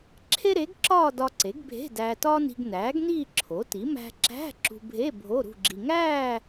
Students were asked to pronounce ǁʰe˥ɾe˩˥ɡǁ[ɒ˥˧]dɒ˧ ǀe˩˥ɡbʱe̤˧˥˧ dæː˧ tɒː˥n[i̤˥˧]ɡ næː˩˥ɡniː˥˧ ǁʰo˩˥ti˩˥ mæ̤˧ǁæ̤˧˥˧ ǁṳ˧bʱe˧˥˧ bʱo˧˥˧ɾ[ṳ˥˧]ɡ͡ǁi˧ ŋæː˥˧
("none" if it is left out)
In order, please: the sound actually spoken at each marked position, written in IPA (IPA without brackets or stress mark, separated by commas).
ɒː˥˧, i̤˧, ṳ˥˧